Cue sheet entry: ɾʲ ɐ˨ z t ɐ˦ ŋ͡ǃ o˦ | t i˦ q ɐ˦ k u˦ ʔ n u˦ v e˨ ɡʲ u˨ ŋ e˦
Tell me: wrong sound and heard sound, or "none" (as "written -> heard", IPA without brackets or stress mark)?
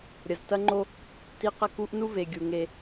none